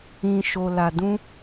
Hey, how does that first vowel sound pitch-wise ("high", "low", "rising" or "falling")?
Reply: low